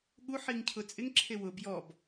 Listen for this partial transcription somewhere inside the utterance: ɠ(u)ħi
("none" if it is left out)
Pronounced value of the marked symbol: u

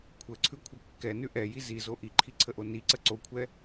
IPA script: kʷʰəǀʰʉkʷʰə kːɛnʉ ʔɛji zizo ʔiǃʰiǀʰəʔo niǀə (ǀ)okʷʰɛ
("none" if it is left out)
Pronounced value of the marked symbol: ǀ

